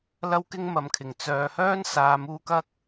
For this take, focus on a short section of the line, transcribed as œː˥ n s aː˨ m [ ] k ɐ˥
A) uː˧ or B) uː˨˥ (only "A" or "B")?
A